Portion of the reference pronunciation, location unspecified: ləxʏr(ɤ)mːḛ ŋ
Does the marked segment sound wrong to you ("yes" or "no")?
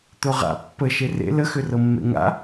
no